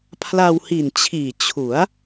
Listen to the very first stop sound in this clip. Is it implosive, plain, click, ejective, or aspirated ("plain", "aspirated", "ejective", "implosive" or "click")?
aspirated